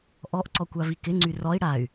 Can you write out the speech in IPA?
ʔɔʔǀɔ kʷavikɪŋ͡ǀy rɔi̯ ɽay̯

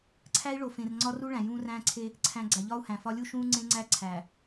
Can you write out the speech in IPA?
ǀʰæ˦i̯ɭo˨ fẽ˨rŋ͡ǀɒ˦ru˦ ɭæ̃˨jũː˦ræ̃ː˦ǀʰe˦ | ǀʰæ̃˨ ɡ͡ǀæ˨ʎɒː˦u̯hæ̃˨fɒ˦ lʲu˦ʃũː˦ ŋ͡ǀẽ˦ŋ͡ǀæ˦ ǀʰæ˨

